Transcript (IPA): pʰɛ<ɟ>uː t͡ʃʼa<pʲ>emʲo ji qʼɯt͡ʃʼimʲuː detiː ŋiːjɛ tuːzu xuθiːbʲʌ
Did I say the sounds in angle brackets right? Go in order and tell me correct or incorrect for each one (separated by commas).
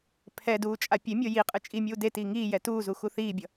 incorrect, correct